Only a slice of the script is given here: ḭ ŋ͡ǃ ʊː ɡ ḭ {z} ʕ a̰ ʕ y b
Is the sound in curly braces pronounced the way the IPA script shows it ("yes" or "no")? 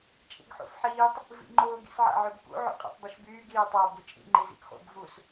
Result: no